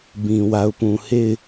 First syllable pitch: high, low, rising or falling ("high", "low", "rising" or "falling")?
low